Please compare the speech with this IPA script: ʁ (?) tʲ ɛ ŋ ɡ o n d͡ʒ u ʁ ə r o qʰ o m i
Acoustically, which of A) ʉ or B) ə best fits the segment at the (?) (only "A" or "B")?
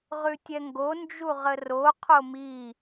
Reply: A